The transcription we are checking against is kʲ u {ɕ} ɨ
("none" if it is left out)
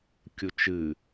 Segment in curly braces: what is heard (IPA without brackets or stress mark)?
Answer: t͡ʃ